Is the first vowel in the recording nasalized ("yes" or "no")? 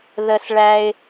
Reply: no